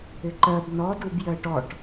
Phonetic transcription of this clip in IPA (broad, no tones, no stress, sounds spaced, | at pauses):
ɪ ǃ ɜ b n ɔ d u b j ɜ ʈ ɔ ʈ